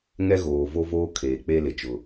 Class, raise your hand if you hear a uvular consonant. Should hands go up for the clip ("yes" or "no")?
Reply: no